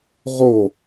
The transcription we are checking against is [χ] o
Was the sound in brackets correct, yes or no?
no